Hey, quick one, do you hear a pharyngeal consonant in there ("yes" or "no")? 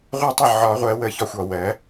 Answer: yes